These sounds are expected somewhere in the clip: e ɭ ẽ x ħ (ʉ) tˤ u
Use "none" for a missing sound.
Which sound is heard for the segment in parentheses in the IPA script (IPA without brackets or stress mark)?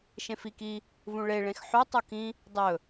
ʉ